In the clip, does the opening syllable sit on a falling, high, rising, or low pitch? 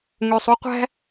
low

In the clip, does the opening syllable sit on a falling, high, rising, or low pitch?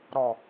low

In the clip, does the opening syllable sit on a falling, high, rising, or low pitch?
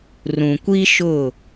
low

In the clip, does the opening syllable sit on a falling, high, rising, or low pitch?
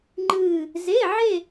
falling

